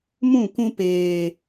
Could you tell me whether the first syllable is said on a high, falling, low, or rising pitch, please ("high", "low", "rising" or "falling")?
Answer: falling